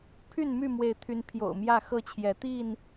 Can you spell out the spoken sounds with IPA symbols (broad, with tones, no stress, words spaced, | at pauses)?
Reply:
pʰy˥˨nmy˥˨mwe˨˦ɪ̯t̪ʰy˨˦n pʰjo̰˨˩ʊ̯mjä˥˨xɤ˥˨t͡ɕʰjɛ˨˦ t̪i˥˨n